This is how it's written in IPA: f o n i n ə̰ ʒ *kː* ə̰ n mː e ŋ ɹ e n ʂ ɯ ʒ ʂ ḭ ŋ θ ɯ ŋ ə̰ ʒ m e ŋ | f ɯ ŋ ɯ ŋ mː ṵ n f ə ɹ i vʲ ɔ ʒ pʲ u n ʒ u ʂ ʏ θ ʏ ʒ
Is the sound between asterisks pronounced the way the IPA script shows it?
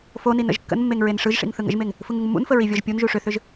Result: yes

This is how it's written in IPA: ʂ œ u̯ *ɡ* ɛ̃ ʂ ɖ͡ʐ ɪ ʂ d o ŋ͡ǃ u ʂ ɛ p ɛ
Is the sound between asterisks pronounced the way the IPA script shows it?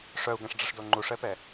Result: yes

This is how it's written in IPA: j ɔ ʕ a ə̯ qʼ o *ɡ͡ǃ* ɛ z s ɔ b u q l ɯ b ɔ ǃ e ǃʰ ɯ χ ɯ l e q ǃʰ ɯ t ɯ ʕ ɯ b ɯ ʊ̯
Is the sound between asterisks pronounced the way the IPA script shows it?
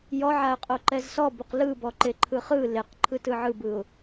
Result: no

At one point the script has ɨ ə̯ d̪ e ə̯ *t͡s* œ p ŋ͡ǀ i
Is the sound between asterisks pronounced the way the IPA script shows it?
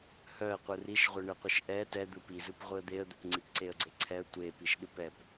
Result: no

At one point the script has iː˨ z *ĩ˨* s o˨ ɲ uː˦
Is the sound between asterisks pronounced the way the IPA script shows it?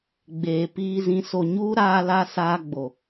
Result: yes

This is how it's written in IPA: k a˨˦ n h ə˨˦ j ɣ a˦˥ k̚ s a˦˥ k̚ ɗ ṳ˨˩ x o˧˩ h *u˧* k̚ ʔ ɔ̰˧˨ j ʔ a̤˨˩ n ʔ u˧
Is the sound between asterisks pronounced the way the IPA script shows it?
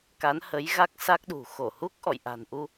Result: no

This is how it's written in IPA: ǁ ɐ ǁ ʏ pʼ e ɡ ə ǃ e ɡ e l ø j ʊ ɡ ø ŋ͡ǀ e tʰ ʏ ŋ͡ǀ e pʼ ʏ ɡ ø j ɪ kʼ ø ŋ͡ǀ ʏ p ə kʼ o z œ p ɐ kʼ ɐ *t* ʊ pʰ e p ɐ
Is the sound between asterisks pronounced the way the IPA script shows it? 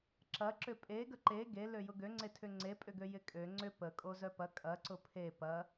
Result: no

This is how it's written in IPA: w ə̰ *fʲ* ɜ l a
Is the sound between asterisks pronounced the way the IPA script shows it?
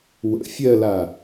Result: yes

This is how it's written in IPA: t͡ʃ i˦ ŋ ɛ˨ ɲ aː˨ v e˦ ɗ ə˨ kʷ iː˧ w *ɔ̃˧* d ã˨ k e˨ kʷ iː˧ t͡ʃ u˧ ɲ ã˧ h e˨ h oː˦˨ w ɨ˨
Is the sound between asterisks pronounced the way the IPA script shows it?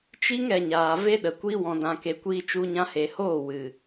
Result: no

